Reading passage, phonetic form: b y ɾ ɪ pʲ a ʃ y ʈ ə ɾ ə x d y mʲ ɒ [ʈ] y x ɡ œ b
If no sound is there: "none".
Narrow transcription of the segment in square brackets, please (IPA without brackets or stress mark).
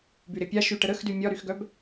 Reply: ɾ